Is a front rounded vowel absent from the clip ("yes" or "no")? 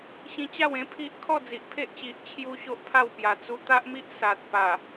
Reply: yes